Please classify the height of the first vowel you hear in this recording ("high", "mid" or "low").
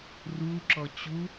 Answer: high